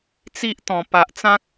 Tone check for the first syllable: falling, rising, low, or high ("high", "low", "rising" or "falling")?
high